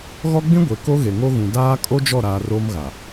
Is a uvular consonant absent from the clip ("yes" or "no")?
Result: yes